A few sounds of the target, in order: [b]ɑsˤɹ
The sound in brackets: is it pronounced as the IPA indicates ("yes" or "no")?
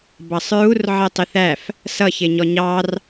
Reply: yes